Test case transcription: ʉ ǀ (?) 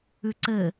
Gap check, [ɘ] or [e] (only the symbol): ɘ